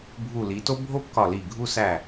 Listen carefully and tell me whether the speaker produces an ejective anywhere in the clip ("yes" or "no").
no